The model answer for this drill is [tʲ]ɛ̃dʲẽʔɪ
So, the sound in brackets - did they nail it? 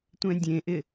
no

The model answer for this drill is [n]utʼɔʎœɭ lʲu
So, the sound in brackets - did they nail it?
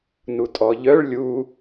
yes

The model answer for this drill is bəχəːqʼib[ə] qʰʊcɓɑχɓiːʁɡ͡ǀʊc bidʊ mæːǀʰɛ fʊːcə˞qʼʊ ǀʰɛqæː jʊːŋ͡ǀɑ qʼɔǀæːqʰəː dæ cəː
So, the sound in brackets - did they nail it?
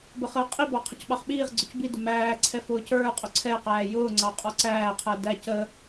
no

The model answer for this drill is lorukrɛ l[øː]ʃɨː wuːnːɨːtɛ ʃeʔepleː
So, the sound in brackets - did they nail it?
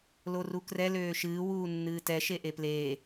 yes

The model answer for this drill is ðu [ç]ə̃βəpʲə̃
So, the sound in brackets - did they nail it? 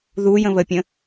no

